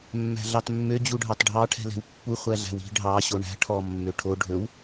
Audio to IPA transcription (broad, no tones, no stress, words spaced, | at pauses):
mːæ̤ɮɑtmːø d͡ʑuɖʱɑtɖʱɑ ʈʰɛ̤lɛ̤wpːu χʷæɮæ̤wi̤ ɖʱɑ ɕoɳæ̤ ʈʰɔ mːøʈʰo ɖʱɵw